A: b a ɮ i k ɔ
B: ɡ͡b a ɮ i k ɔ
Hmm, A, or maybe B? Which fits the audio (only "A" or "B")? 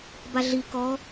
A